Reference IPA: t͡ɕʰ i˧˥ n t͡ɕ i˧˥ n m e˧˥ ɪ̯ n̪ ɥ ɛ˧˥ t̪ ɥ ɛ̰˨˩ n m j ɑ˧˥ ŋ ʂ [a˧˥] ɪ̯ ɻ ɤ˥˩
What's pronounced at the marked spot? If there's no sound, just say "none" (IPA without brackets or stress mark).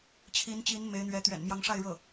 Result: a˥˧